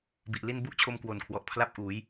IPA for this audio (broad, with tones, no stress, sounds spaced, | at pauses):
b i˨˩ ʔ l i˥˩ n b u˥˩ ʔ t͡ɕʰ o˧ m k w o˨˩ n kʰ w ɔ˨˩ ʔ pʰ l a˥˩ p̚ ʔ uː˩˦ j